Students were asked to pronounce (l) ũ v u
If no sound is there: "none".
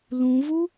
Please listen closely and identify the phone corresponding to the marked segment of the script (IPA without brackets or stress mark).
l